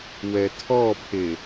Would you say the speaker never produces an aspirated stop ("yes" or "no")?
no